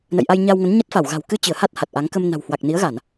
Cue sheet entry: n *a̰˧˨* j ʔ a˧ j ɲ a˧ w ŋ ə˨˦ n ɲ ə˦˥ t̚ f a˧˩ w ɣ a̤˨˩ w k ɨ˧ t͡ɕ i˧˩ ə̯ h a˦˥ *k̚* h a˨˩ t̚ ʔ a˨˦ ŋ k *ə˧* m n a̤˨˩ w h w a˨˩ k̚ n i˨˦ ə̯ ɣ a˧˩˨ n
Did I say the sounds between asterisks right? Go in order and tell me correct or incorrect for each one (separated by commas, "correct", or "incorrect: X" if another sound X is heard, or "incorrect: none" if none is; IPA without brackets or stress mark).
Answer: incorrect: ə̰˧˨, incorrect: t̚, correct